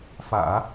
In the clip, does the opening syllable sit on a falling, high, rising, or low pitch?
low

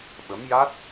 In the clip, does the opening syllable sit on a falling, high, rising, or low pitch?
rising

